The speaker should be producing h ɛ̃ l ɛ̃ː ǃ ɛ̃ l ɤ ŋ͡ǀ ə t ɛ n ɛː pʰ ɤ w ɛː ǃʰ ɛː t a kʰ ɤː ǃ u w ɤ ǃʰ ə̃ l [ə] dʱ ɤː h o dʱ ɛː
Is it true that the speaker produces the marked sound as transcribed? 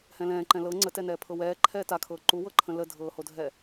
yes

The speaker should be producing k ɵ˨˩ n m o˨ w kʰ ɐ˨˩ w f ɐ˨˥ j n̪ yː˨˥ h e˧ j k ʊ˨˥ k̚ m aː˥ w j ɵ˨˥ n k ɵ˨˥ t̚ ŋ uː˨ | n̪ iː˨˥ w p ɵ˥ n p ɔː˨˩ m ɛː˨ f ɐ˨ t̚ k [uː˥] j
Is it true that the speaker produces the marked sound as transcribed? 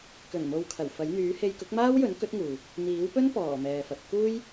yes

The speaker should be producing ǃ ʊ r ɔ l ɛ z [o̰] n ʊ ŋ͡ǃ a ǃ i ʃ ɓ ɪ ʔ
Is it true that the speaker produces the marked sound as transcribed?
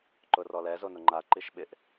no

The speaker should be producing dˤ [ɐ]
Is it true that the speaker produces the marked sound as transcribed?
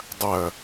yes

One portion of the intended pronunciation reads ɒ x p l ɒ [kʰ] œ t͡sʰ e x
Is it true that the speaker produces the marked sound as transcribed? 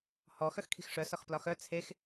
no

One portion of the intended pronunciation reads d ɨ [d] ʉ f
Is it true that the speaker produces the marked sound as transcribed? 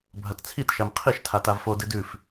yes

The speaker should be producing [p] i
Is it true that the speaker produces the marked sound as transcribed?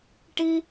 no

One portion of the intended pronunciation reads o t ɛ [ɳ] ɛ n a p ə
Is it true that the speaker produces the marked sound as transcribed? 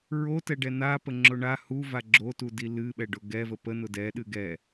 no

